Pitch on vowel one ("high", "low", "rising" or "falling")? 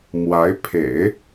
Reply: rising